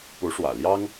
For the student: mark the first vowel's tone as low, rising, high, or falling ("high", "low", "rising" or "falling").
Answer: rising